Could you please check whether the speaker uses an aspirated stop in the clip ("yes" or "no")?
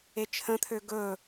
yes